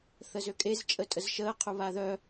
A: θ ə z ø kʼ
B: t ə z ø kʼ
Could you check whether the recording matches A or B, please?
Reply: A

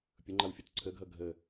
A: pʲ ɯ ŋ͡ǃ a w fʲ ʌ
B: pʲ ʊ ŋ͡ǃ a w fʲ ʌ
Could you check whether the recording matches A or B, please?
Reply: B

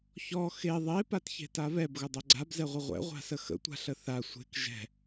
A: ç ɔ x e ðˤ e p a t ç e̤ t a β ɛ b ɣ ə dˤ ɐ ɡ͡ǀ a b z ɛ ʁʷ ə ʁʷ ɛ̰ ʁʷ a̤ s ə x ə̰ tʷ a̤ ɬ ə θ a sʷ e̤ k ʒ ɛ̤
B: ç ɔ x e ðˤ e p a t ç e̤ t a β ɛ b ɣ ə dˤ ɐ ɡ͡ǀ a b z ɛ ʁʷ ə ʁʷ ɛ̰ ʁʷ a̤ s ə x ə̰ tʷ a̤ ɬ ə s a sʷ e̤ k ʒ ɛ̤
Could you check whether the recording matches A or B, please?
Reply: A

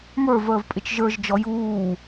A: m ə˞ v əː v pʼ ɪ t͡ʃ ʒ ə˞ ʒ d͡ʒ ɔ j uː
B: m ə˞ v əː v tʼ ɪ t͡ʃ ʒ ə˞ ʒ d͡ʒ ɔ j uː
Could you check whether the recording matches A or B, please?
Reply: A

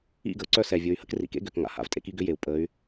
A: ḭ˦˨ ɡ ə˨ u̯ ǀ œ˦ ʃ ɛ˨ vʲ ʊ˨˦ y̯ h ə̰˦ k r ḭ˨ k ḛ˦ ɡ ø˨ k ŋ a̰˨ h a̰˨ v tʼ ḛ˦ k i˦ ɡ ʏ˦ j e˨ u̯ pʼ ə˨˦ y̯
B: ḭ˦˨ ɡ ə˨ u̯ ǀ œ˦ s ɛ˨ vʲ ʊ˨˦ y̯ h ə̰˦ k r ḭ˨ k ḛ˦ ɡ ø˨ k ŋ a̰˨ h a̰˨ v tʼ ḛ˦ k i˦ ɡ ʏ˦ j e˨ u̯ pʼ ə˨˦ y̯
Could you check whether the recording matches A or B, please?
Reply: B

